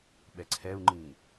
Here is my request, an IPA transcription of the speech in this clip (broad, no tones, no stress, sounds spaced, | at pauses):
ɓ ɛ ǀʰ ɛ u̯ ŋ͡ǃ ĩː